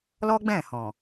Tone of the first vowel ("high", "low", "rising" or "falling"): high